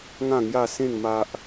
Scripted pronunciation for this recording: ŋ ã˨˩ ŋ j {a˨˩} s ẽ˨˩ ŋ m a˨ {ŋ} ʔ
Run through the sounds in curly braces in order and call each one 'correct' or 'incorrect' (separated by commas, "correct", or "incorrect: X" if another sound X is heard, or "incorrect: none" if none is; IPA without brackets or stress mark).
correct, incorrect: none